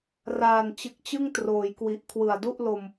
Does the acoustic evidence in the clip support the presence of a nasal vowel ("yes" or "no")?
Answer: no